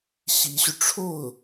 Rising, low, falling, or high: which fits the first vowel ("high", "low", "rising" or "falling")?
rising